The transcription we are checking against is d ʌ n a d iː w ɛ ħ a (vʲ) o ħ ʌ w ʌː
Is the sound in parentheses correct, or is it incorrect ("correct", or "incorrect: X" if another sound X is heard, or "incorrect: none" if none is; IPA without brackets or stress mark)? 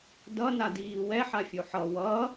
incorrect: fʲ